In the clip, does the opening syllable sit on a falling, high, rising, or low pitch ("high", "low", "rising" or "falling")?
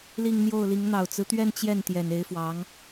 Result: falling